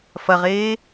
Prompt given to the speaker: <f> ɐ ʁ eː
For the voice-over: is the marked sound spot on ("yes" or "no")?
yes